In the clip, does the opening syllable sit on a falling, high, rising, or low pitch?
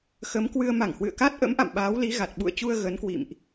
rising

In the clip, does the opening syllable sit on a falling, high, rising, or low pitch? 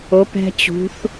rising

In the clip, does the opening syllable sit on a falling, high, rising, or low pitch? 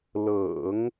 low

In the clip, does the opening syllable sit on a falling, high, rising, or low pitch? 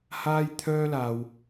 high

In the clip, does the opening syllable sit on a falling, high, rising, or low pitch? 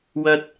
high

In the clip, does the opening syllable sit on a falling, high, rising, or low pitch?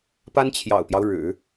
high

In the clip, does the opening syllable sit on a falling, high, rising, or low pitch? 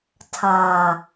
low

